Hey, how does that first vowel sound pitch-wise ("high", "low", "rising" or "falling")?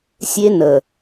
high